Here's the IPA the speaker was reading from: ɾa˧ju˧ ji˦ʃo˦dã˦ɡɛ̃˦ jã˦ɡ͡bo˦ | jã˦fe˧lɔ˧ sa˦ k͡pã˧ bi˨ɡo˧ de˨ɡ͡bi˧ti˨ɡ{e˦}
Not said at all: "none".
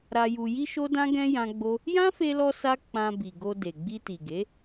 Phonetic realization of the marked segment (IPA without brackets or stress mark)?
e˨˦